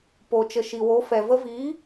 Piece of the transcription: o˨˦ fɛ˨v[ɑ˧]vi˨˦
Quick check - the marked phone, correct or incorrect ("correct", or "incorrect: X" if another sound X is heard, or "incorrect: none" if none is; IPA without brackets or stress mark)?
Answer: incorrect: ə˧